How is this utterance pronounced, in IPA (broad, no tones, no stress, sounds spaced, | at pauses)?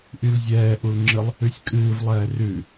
ʔ y l zʲ ɛː ʔ u l ŋ͡ǁ ɨ lˠ | ʉ sʲ kʼ ɨː v lˠ ɛː r ʉ